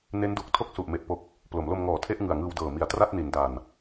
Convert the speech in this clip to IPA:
n e˦˥ n d u˨˩ k̚ tʰ o˥˩ k̚ s u˨˩ ʔ m e˨˩ ʔ p o˨˩ k̚ | p l o˩˦ m l o˧ m ŋ ɔː˨˩ tʰ e˥˩ ʔ ŋ ɯ˨˩ a̯ ŋ ɯː˧ w d ɤː˨˩ m i˨˩ a̯ t r a˥˩ t̚ n i˩˦ n d a˨˩ n

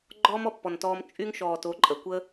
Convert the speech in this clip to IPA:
ɡ͡ǃ ɔː˦ m ɔ˧ pː ɔ˨ n t ɔː˧ m t͡ʃʼ y˦ ŋ ʃ ɔː˨ t o˨˦ ǃʼ ə˨ kʷ ə˦

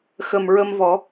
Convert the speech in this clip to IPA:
x ə˨˩ m ɹ ə˧ m v ɔ˨˩˦

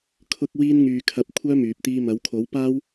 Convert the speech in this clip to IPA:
kʰ ʊ˥ k̚ w iː˥ n ŋ yː˧ kʰ ɐ˧ p̚ kʷʰ œː˥ m yː˨ p̚ t̪ iː˧ m ɐ˨˥ w kʰ o˨˥ w p aː˥ w

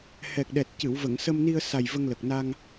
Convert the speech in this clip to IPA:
h ɛ˨˩ k̚ ɗ ɛ˨˩ t̚ c ɨ˨˩˨ w v ə˨˩˨ ŋ s ə˧ m n i˧ ə̯ s a˨˩ j v ə˧ ŋ l ə˨˩ k̚ n a˧ ŋ

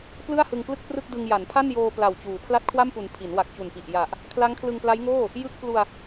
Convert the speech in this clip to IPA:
p l ɯ˥˩ a̯ h ɯ˧ ŋ k l ɯ˥˩ k̚ p r ɯ˥˩ k̚ d ɯ˧ ŋ j a˩˦ n pʰ a˥˩ n j oː˧ p l a˨˩ w t͡ɕ uː˩˦ pʰ l a˦˥ t̚ kʰ w a˥˩ m p u˩˦ n pʰ i˩˦ n w a˨˩ k̚ t͡ɕ u˨˩ n p i˨˩ ʔ j a˨˩ ʔ | kʰ l a˦˥ ŋ kʰ l ɯ˧ ŋ p l a˦˥ j ŋ oː˥˩ | j ɯ˥˩ k̚ p l u˧ a̯

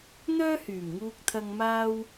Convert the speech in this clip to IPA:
n̪ œː˥ h yː˨˩ m ŋ uː˧ k̚ t̪ʰ ɐ˧ ŋ m aː˧ w

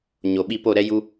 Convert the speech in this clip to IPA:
ɲ o˨ ɓ i˧ p o˦˨ ɾ ɛ˦ j u˧

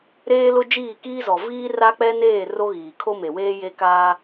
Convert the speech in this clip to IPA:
ɾ eː˦ l ʊ˦ d͡ʒ iː˦˨ k iː˦ z ɔ˨ v iː˦ r a˦ k͡p ɛ˦ n eː˦˨ r o˦ ɣ iː˨ kʰ o˦ m e˨ w eː˦ j e˦ k aː˦

